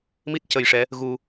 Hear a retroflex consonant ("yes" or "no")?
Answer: yes